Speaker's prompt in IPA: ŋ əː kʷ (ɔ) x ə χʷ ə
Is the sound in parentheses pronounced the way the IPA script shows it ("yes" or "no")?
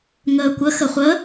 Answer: no